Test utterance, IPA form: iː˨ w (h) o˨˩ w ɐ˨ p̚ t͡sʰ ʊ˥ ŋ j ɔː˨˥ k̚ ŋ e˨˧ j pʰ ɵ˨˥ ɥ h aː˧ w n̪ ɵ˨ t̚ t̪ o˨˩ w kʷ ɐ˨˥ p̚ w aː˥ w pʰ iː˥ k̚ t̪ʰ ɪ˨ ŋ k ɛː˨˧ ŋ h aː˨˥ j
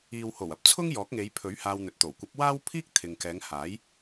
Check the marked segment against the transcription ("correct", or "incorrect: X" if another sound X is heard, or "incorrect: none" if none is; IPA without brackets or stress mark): correct